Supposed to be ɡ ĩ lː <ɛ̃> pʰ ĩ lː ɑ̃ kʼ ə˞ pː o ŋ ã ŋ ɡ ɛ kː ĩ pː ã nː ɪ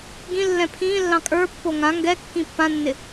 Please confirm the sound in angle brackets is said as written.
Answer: yes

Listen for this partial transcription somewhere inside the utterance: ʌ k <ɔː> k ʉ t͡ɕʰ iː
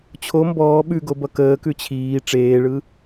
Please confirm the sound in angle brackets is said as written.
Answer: no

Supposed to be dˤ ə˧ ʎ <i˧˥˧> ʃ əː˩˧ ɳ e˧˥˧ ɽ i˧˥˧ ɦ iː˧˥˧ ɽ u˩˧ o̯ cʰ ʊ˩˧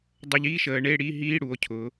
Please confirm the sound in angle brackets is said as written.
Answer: yes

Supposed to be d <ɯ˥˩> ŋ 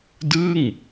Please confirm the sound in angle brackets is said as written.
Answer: yes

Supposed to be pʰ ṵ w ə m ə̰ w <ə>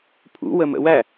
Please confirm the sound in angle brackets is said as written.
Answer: no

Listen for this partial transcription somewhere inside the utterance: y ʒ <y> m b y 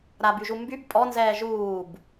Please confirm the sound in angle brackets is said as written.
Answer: no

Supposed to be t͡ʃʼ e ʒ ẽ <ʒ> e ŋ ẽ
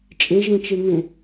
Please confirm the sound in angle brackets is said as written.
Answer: no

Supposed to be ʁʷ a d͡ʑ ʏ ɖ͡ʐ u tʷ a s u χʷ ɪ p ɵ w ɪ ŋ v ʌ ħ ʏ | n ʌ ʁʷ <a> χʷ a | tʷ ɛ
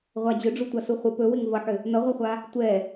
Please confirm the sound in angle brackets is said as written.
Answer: yes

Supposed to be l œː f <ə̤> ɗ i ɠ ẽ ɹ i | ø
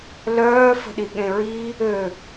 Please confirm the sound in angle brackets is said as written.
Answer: yes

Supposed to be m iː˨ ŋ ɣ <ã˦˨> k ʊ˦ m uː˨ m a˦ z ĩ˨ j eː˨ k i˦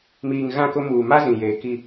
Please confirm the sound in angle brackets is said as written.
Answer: yes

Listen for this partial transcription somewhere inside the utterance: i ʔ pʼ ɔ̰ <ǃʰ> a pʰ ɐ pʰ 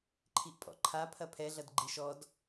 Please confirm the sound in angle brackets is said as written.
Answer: yes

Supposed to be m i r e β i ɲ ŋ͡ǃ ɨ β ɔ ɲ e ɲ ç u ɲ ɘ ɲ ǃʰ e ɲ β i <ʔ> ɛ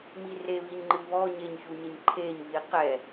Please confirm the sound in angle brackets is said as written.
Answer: no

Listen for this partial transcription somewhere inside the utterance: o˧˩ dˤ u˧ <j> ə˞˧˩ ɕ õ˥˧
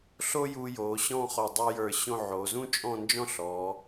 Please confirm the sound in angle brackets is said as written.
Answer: yes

